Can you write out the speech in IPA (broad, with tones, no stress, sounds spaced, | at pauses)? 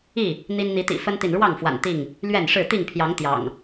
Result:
i˥˨ | n̪ i˦ n n̪ i˨˦ t̪ ḭ˨˩ f ə˦ n t̪ i˨ n ɻ w ɑ˥˨ ŋ f w a̰˨˩ n t̪ i˥˨ ŋ | l ɥ ɛ˥˨ n ʂ ɻ̩˥˨ t̪ i˥˨ ŋ pʰ j ɑ˨˦ ŋ t̪ j ɑ̰˨˩ ŋ